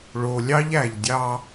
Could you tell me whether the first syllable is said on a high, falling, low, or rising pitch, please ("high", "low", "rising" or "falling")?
low